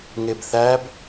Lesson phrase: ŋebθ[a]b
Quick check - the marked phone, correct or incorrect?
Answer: incorrect